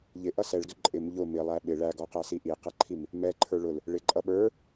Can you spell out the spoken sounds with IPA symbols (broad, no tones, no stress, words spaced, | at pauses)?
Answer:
ʎɪʔʌ sɛɭdʊ ǃʼɪm ʎʊ mɪlˠæ ɓɪ ɭæɡɔqæsi ʔiqʌǃʰim | mɛǃʰə˞ ɭʊl | ɭɪǃʼʌ ɓə˞